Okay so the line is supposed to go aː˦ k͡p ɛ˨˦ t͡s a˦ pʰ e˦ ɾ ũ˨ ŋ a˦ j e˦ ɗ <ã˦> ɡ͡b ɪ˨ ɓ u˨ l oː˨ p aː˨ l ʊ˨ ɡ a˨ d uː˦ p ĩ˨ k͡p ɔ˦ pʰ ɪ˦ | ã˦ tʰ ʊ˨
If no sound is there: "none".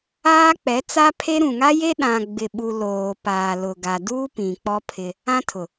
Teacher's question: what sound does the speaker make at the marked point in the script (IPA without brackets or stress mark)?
ã˨